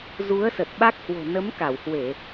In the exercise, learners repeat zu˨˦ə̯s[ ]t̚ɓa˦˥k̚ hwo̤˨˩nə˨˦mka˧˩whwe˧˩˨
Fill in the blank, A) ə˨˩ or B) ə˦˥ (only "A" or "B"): A